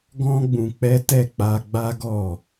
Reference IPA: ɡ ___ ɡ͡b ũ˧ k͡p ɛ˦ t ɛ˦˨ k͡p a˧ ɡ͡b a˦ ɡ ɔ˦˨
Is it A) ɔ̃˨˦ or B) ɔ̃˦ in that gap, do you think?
B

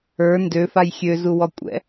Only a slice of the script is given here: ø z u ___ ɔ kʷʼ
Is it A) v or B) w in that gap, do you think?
B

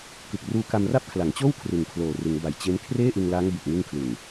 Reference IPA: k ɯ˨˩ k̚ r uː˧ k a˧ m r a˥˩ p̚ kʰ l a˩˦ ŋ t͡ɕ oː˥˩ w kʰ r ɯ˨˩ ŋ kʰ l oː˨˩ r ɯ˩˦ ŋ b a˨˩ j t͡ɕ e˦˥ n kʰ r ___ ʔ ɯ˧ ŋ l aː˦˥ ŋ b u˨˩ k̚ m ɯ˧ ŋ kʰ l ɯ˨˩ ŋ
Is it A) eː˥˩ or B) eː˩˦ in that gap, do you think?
A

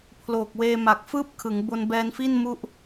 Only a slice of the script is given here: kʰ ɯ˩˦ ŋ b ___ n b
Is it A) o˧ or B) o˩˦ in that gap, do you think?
A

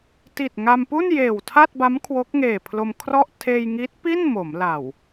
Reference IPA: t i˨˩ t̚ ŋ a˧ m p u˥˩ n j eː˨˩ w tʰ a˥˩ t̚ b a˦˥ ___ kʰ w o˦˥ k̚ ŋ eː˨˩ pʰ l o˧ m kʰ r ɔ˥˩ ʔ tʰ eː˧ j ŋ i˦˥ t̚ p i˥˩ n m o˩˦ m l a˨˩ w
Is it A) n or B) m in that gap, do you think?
B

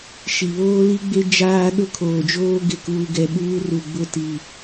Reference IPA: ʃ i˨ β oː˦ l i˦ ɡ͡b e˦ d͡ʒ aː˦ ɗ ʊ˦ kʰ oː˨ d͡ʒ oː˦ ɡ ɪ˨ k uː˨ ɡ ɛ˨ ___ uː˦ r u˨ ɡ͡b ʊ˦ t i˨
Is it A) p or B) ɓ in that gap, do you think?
B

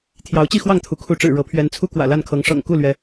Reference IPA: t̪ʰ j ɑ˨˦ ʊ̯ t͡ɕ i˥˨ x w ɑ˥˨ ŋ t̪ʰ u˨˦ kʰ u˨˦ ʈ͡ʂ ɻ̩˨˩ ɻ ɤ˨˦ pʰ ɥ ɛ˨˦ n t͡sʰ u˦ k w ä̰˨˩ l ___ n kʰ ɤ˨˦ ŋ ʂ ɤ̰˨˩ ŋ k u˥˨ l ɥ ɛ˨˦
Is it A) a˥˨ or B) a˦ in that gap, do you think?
A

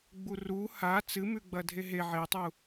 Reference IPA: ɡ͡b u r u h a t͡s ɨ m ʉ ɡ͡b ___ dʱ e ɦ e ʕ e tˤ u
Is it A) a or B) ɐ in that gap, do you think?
B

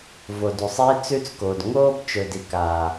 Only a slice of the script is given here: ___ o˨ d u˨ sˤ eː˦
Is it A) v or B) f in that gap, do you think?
A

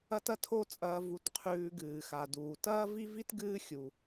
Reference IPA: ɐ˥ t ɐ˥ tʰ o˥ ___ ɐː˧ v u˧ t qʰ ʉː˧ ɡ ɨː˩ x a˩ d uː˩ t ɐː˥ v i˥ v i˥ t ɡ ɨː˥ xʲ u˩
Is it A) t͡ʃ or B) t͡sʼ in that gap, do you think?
B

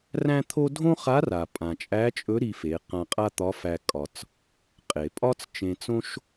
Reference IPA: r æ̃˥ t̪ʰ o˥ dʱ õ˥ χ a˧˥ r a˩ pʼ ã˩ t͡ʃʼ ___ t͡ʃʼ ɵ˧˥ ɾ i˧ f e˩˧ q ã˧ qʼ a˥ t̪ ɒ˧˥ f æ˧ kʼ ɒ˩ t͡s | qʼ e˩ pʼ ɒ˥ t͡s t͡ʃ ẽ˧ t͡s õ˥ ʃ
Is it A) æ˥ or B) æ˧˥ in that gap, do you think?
B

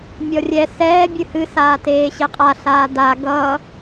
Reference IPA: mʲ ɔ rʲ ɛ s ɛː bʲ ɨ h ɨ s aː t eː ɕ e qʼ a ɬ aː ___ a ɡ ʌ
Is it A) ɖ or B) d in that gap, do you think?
B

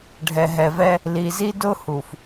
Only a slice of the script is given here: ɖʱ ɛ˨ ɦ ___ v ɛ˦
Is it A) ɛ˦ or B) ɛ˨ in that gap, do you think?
B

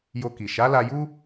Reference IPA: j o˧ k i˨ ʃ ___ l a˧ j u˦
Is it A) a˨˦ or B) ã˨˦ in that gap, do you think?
A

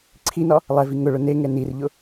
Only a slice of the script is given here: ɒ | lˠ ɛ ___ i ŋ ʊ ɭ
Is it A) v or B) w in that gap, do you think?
A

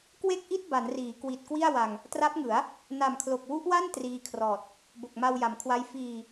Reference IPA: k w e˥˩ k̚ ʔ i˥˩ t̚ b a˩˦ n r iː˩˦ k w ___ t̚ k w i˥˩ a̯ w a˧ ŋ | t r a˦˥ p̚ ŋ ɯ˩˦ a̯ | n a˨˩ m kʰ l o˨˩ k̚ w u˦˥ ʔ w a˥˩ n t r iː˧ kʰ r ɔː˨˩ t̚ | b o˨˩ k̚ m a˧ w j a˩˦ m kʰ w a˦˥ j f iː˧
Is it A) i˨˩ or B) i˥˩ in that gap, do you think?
A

